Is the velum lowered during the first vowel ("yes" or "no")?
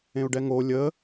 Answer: yes